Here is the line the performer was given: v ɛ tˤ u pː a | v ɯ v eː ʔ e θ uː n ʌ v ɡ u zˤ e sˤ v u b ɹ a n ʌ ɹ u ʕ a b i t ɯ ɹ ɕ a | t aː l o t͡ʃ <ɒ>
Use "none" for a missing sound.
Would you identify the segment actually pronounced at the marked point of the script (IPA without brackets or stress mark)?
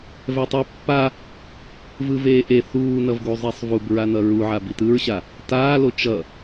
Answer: ʌ